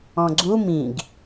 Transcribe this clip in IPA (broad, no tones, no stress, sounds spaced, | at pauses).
ɔ̃ ɡ͡ǀ u m ĩ ɡ